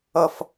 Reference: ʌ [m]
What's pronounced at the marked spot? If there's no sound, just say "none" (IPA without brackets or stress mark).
f